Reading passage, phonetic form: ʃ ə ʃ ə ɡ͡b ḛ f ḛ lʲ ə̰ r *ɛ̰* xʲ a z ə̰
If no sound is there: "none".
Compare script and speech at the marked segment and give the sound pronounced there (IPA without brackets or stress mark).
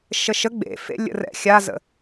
ɛ̰